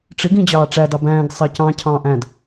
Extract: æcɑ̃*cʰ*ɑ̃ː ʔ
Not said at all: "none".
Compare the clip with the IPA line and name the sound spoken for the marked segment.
cʰ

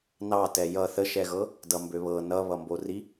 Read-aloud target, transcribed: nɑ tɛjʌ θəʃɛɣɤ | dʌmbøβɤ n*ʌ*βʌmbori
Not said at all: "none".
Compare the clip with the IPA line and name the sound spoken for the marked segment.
ʌ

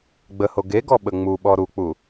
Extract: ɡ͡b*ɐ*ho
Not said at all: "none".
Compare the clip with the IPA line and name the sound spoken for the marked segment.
ə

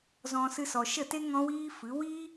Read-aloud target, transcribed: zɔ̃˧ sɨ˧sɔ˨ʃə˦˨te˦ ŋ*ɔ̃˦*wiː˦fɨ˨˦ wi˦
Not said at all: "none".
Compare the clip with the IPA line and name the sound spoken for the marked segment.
ɔ̃˦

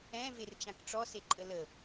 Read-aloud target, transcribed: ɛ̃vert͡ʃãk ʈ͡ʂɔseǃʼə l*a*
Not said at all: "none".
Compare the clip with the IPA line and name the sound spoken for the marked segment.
ə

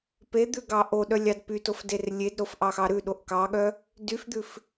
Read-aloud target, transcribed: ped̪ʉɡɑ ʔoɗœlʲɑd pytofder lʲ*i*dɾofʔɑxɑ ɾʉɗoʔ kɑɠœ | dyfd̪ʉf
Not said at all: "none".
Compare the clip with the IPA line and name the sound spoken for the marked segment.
e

